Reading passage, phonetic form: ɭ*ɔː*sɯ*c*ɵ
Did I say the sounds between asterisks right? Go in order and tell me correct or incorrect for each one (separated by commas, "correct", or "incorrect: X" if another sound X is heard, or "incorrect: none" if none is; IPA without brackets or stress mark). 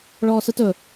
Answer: correct, incorrect: t